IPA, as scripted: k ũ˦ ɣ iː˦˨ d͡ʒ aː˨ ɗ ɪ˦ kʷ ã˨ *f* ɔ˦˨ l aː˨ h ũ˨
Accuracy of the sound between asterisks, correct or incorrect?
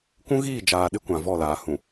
incorrect